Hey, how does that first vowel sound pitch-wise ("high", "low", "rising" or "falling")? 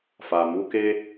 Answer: low